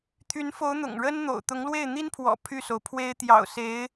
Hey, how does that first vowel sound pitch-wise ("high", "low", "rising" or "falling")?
rising